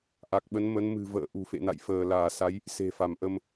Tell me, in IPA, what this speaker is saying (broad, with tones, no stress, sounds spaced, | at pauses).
ʔ a˨˩ k̚ ɓ ə˨˦ n m ə˨˦ n m ɨ̤˨˩ v ə̰ː˧˨ ʔ ṳ˨˩ f ḛ˧˨ n a̰˧˨ j f əː˧˩ l aː˧˩ s a˨˦ j | s e̤˨˩ f a˧˩ m ʔ ə˧ m